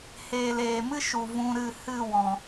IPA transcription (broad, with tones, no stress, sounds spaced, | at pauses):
h eː˨ l eː˨ m ɨ˦ ʃ u˨ v ũ˧ ɾ ɨ˦˨ h ɨ˦˨ w ɔ̃˨